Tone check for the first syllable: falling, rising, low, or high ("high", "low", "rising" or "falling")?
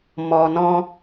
low